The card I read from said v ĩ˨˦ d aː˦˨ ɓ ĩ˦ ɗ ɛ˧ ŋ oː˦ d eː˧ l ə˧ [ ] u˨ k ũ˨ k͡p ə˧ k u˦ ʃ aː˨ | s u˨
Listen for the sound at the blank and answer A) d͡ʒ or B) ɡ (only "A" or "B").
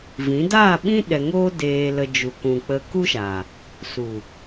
A